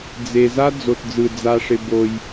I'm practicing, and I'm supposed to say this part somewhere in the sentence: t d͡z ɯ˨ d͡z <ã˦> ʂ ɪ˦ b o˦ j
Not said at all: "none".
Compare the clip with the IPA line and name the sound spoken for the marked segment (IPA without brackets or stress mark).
a˦